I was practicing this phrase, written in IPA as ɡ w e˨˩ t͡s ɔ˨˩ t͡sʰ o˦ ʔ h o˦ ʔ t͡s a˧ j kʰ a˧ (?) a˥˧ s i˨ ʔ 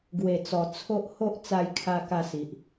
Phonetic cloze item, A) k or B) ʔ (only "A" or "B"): A